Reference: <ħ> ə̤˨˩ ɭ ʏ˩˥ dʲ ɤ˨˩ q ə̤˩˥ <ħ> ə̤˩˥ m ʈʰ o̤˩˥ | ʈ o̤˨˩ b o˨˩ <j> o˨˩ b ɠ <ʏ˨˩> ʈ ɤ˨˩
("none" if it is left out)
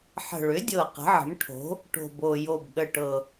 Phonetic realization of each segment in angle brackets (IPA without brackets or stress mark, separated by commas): ħ, ʕ, j, ə˨˩